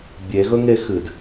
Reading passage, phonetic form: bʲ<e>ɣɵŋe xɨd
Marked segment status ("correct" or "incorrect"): correct